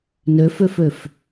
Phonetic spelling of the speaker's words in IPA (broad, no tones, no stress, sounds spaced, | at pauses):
n ø f ø f ø f